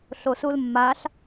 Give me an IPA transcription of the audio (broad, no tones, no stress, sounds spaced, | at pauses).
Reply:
ɬ o s u l mː a ɬ